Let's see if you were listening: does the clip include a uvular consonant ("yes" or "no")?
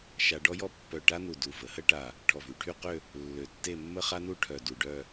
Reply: yes